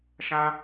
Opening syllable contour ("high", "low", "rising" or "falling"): high